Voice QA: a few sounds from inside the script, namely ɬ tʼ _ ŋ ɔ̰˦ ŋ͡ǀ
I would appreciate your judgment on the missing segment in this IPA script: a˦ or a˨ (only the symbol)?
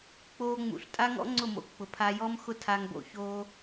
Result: a˦